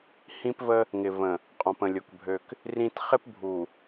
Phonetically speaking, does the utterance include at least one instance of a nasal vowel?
yes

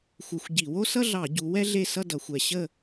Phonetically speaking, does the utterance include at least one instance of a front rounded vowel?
no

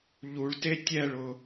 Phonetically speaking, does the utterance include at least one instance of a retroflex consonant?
yes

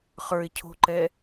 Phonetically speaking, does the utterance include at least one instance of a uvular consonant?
yes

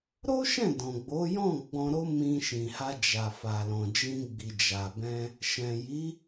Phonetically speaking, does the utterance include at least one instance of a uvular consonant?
no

